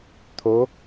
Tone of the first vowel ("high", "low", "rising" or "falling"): rising